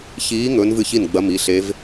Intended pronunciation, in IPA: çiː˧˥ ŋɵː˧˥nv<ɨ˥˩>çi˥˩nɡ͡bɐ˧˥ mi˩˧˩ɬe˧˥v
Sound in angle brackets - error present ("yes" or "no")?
no